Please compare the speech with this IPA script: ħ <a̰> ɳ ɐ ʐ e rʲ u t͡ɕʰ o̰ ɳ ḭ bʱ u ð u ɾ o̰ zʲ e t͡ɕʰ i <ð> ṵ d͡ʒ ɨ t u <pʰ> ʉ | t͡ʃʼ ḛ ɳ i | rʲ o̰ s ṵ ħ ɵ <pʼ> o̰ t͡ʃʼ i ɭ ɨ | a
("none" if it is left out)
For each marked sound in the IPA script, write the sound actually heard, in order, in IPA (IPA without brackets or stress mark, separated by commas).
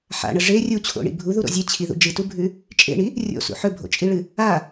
a̰, ð, bʱ, bʱ